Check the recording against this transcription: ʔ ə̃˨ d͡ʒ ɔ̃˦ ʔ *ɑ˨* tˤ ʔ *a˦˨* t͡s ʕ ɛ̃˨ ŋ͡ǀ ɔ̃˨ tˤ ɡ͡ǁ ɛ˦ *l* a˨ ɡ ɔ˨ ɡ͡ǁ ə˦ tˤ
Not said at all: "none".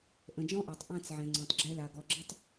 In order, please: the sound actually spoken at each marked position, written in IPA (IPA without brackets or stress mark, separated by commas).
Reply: a˨, ã˦˨, l